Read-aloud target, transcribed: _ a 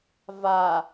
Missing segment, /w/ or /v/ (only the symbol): v